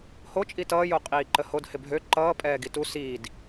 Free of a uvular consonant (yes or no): no